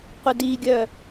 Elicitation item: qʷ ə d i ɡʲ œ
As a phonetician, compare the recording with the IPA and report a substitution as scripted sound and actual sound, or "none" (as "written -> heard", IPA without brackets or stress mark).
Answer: none